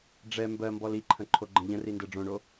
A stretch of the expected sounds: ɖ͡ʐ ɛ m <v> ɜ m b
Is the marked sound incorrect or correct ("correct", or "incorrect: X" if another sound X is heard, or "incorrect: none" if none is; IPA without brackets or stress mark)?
incorrect: b